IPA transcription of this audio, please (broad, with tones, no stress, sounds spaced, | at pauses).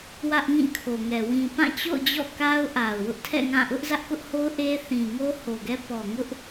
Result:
w ä˦ ʔ ŋ ĩ˦˨ kʰ o˨ ŋ ɛ˨ w ĩ˨ p ã˦˨ t͡ɕ o̰˦˨ ʊ̯ d͡ʑ ɔ̰˦˨ k a˦ ʊ̯ ʔ a˨ ʊ̯ w ʊ˦ ʔ tʰ ɛ̰˦˨ ŋ ã˦˨ ʔ ʊ˦ ʔ z ä˦ ʔ k ʊ˦ ʔ h o˦ ʊ̯ ʔ e˦ θ ĩ˨ ŋ o˦ h o˨ ɡ ɛ˦ p ɔ˨ ŋ ʊ˦ ʔ